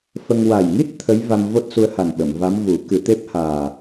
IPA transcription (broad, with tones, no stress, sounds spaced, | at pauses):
f ə˧ ŋ w a˨˩ j ŋ i˦˥ t̚ t̪ʰ ə˧˥ j v a˧ m v o˦˥ t̚ s u˧˥ ə̯ h a˨˩ n ɓ ə˨˩˨ m v a˧˥ m v u˨˩˦ k ɨ˨˩˦ t̪ e˦˥ p̚ h aː˨˩